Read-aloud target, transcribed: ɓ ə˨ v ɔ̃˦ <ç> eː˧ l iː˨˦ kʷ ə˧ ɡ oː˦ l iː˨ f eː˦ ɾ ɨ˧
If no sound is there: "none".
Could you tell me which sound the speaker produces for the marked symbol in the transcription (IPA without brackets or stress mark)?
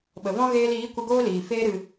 ɣ